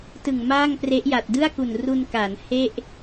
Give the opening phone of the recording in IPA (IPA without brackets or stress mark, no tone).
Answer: t